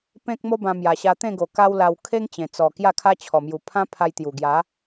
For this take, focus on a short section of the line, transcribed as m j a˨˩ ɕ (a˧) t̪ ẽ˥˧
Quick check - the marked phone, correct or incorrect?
correct